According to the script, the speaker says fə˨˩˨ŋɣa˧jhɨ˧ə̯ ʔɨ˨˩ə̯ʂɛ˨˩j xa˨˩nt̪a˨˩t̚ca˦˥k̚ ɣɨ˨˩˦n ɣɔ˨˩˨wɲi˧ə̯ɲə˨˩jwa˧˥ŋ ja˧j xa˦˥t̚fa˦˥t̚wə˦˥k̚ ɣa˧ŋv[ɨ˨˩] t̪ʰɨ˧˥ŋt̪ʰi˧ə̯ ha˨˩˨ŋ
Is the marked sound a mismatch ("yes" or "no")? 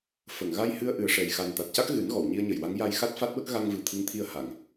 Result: no